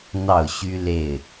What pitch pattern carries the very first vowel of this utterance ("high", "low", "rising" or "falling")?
falling